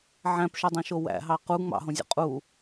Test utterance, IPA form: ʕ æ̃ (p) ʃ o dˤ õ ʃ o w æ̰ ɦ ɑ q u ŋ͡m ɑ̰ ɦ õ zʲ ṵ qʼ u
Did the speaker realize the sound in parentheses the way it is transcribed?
yes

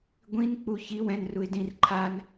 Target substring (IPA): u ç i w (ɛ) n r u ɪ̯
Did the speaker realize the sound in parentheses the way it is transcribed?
no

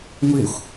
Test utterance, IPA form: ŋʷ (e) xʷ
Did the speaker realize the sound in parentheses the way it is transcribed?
yes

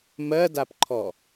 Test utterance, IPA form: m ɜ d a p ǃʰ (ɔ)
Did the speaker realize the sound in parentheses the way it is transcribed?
yes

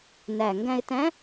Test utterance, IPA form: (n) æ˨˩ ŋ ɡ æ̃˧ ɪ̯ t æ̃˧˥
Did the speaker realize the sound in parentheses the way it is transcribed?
yes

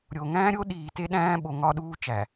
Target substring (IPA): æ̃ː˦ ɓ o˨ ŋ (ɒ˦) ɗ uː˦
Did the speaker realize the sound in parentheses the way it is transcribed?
yes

